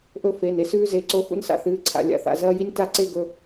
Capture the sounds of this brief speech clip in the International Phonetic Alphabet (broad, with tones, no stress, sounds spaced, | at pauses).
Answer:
ʔ ɵ˦ f e˩˧˩ n e˦ s ʉː˦ z e˩˧˩ ǀ o˦ x ṵ˦ n s a̰˦ θ ɨː˩˧˩ ǀʰ a̰˩˧˩ lʲ a̰˩˧˩ θ a̰˩˧˩ z ɐː˦ j i˦ nʲ t a˦ ǀ e˦ ɡ ɵ˩˧˩